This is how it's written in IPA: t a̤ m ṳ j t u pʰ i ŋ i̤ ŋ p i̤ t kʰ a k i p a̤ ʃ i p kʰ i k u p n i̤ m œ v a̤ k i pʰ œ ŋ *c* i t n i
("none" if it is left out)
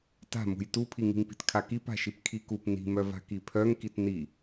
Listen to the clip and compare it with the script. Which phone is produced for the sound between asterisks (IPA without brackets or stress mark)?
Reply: k